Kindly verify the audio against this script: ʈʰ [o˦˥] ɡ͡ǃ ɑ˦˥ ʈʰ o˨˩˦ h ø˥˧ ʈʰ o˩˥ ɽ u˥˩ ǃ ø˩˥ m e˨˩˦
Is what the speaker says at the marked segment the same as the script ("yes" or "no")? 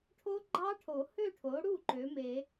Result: yes